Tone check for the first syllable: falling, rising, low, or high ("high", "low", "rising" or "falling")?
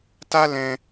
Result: high